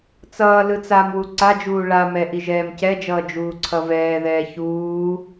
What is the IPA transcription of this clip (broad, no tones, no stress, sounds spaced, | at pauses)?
t͡s ʌː l ɯ t͡s a m w u ǀ a d͡ʒ uː ɭ a m ɛ ʔ i ʒ ɛː m c ɛ d͡ʒ ʌː d͡ʒ uː ǀʰ ʌ v ɛː ð ɛː ç uː